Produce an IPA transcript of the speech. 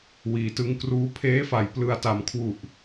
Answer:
w iː˩˦ t ɯ˧ ŋ k r uː˦˥ pʰ eː˦˥ f a˩˦ j p l ɯ˨˩ a̯ t a˩˦ m kʰ w u˨˩ ʔ

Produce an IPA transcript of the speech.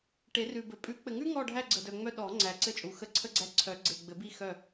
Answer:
ʈ e˨˩˦ r ʉ˨ b ɘ˨˩˦ pʼ ʉ˨˩˦ k͡p ɘ˨ ŋ ʉ˦ ŋ ɔ˦˨ ɖʱ æ˦˨ ɡ͡ǀ ə˨ d œ˨ ŋ͡m œ˦˨ ɗ ɔ˨˩˦ ŋ͡ǀ æ˨ ǀ ɘ˦ t͡ʃʼ u˨ x ə˦ ǀʰ ə˦ ɡ͡ǀ æ˦˨ ǀʰ œ˨˩˦ ɡ͡ǀ e˨ ɡ͡b ɘ˨˩˦ b i˦˨ x œ˦˨

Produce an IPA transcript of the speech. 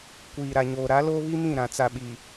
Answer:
kʷ iː˨ ɾ a˨ ɲ oː˨ ɾ a˨˦ l oː˦ β i˦ m ĩ˦˨ ɾ ã˨ t͡s a˨ ɓ i˨

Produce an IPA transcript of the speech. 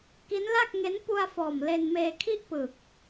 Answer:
k i˦˥ n l a˥˩ k̚ ŋ e˦˥ n p u˧ a̯ f ɔː˨˩ m l e˧ n m eː˧ kʰ i˥˩ ʔ p ɯ˨˩ k̚

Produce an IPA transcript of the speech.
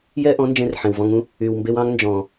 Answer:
j ɛ˦ ʔ ɔ̃˨˦ n d͡ʒ ẽ˧ r ħ ẽ˨ w v ɔ̃˧ ŋ ũ˦ | y˨ w m b e˧ w ɑ̃˧ ŋ n d͡ʒ ɔ̃˨

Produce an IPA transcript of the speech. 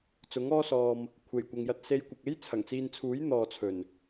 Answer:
t͡s ʊ˨˥ ŋ ɔː˥ s ɔː˧ m | kʷʰ e˨˩ j kʷ ɐ˨ ŋ j ɐ˧ t̚ s e˧ j kʷ ɐ˨ k̚ e˥ j t͡sʰ ɐ˨˩ ŋ t͡s iː˧ n t͡sʰ uː˨˥ j n̪ ɔː˨ t͡sʰ ɵ˨˩ n

